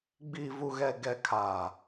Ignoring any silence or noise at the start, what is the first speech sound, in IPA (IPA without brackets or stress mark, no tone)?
ɡ͡b